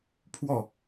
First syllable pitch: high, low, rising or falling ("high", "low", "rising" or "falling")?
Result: falling